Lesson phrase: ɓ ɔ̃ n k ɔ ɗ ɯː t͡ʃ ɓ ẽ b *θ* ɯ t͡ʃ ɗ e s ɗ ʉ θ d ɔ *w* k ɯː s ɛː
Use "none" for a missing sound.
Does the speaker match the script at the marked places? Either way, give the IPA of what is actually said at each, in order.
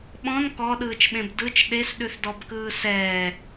d, b

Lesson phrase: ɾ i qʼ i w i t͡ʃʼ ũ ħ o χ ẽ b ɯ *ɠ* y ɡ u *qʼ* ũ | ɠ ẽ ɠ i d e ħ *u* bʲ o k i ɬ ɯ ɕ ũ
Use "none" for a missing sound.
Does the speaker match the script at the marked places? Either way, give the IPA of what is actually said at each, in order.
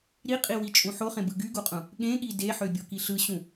ɡ, qʼ, ø

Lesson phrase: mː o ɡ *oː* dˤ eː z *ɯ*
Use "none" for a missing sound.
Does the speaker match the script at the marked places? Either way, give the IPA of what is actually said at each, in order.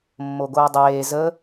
oː, ə

